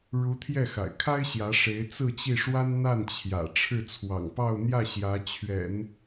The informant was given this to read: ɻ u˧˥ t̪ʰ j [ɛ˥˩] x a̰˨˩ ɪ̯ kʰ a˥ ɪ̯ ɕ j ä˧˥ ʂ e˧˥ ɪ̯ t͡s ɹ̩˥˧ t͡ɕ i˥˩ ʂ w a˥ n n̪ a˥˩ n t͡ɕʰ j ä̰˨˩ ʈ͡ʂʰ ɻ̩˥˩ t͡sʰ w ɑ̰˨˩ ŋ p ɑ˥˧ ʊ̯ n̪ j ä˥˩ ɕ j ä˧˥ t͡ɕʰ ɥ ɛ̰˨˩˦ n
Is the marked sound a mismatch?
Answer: no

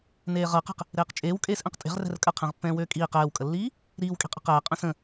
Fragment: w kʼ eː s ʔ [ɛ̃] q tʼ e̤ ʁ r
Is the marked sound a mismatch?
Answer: no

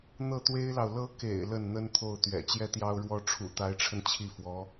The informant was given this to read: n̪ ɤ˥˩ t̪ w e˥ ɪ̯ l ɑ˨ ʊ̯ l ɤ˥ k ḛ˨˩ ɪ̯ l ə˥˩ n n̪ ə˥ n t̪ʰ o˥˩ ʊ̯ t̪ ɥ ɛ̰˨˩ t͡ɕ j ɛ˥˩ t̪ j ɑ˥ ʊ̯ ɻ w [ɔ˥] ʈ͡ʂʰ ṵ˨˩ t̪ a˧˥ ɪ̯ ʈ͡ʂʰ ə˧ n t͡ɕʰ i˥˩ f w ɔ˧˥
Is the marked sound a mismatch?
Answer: no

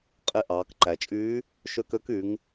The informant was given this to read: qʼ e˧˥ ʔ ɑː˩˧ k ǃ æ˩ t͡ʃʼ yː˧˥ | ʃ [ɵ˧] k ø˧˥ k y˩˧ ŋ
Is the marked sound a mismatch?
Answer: yes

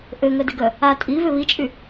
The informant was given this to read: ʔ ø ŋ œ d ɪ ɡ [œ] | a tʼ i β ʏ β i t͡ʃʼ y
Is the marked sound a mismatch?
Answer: no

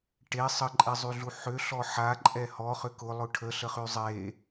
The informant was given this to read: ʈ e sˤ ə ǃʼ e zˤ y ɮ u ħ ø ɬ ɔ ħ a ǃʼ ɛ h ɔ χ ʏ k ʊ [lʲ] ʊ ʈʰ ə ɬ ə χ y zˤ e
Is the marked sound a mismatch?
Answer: yes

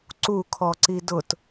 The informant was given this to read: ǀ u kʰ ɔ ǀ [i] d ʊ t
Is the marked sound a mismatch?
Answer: no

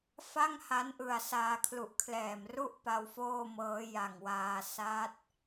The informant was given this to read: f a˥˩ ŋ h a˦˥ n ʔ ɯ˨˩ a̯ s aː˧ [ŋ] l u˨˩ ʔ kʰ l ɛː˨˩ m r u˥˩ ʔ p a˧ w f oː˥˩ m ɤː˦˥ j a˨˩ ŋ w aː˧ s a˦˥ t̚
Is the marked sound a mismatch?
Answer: yes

